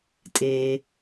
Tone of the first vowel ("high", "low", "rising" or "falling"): low